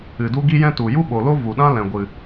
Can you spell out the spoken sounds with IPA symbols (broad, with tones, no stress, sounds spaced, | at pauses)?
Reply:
ɨ˨ d u˦ ɡ i˦ j ɛ̃˦ t u˨ j u˦ ɓ o˨ l o˦ v u˨ ɗ ã˦ l ɛ̃˨ ɡʷ ɨ˨